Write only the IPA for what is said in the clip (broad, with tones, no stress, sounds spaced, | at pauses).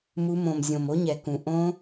m u˨˦ m õ˨˩ m zʲ õ˨˩ m o˦˥ ɲ ɛ˨˩ k ũ˨˩ ʔ õ˦˥